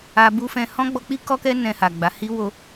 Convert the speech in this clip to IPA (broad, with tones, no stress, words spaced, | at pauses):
a˧ bu˦fɛ̃˧ hɔ̃˦ ɡ͡bɔ˧k͡pi˦ kɔ˦kɛ˦ nɛ̃˧ha˨ɡ͡ba˨˦hi˦ wo˧